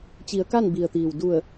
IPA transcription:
t͡ɕi˩˧ə̯ka˥˨n bi˩ə̯t̪iː˩w du˧˩ə̯

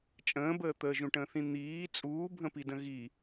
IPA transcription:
t͡ʃʼə̃ːbəː t̪əːʒũʈə̃ːθĩ n̪iː t͡sʼuːbʱə̃pidə̃ ɣi

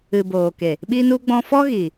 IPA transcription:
ɨ˨ boː˨ke˨ | ɓi˧nu˧ɡ͡bɔ̃˧fɔ˦ ɣi˨

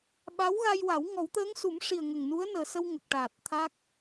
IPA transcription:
ɓa˧˥wɣa˧jwa˨˩˦w ŋɔ˨˩˦wt̪əː˧˥ŋsu˨˩˦mʂi˨˩ə̯ ŋə˨˩ŋnu˧˥ə̯nəː˨˩sə˧w ŋə˨˩k̚ʈaː˨˩t̚t̪ʰa˦˥k̚

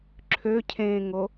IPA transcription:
ǁʰøcʰẽːŋo

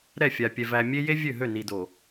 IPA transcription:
ɾɛ˦˨fʲa˨pʲɛ˨ væ˨mʲe˦ je˦ vʲø˦˨ɦø˦˨ni˨do˨

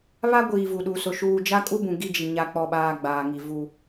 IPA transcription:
βa˦ɡʷiː˨ vu˨ɗu˨sʊ˨ ʃuː˨d͡ʒa˦kʼu˦bũ˨ ɡi˦d͡ʒi˨ ɲa˨k͡pɔ˨ɓaː˨ ɡ͡baː˨ŋi˨ vu˦

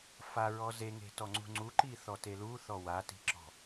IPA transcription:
faɹɔ zeŋe̤tɔ ŋ͡ǀṳŋ͡ǀuǃiθɔ telu θɔwati̤ǁɔ̤

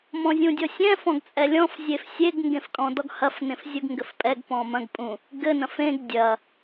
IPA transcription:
mɔ̃zʲũdʲɔsʲɛ̃ fɔ̃ɡt͡sʼɛlʲɔ̃f zʲefsʲeɡ ŋɡẽfkʼɔ̃dɔɡhɐf nẽfzʲuɡŋɡɘfpʼɛɡ pɔ̃mɐ̃ɡ pʼũ | ɡɘ nɐ̃fẽɡ dʲɐ

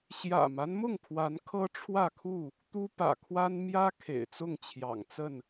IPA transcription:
ɕjä̰˨˩ma˦nmʊ˥˨ŋpʰwa˨˦n kʰɤ˦ʈ͡ʂʰwä˥˨kʰu˥˨ | t̪u˦pä̰˨˩kʰwa˦n mjä˦ kʰḛ˨˩ɪ̯t͡sʊ˥˨ŋt͡ɕʰjɑ̰˨˩ŋt͡sə˥˨n

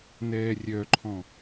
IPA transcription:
nɛːrʲœǃʰɔ̃

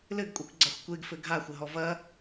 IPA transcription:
lɘɡkʷʼɛkʷɡ͡ǀaxʷ kʷeɡfɘ ɡʱaxʷɘɦɔ vɐ

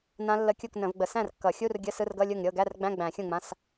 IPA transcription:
nã˦˥lːə˧˥˧kʲu˥˩k nə̃˨˩˦vɡ͡bə˨ sæ̃˥˩rkːʌ˨˩˦xʲu˧˥˧r ɡʲə˧˥˧sɯ˧˥˧rɡʌ˧˥˧ lʲɯ˥˩ŋɾʲɤ˧˥˧ ɡæ˧˥˧rɡ͡bæ̃˧˥˧ɡ͡bæ̃˨˩˦ xʲũ˥˩ŋ͡mã˧˥˧s

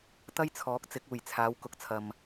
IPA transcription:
t̪ɐ˥jt͡sʰɔː˨˥k̚ t͡sɪ˨˥k̚uː˨˩jt͡sʰaː˨˧w kʊ˨k̚t͡sʰɐ˨m

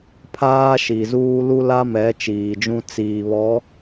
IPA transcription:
pʰaː˦ʃi˨zuː˦ lu˦la˦mɛ˨˦ t͡ʃiː˨d͡ʒũ˦ t͡siː˨βɔ˨˦

